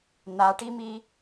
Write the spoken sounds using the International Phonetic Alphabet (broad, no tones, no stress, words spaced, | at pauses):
n̪aʈimi